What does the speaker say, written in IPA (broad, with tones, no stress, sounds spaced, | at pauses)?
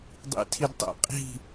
dˤ ḭ˧ tʰ i˧ d tˤ ɛ̰˦ qʼ i̤˦˨